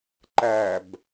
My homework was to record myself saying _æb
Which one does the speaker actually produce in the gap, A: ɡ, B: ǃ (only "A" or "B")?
B